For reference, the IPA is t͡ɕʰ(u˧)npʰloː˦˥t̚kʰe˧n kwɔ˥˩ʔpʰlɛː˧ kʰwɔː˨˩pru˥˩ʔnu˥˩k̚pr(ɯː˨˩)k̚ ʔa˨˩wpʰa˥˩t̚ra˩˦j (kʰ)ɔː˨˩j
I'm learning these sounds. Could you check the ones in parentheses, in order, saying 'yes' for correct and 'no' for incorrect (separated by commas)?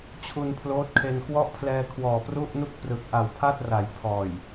yes, no, no